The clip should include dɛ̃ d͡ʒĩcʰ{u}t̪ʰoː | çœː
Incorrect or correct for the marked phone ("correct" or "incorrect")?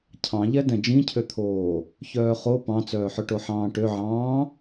incorrect